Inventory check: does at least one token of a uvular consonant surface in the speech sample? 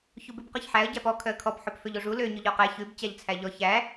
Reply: yes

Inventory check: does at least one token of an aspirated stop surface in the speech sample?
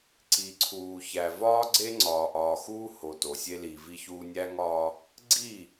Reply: yes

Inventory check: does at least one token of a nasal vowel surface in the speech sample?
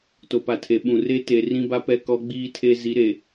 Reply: yes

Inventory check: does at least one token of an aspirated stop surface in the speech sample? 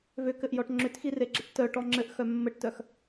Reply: no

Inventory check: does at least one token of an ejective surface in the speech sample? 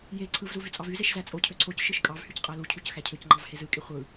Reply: yes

